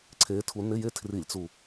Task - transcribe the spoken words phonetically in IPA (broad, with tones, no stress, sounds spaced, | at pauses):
ǀʰ e˨˦ tʰ u˨˦ n ɪ˧˥˧ j e˥˧ tʰ r i˧˩˧ lʲ t͡s u˨˩